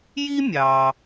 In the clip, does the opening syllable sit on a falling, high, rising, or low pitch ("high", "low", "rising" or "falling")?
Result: high